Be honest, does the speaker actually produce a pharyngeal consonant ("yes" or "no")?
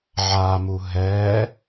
yes